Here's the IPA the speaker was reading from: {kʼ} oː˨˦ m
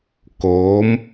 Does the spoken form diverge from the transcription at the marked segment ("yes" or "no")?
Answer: yes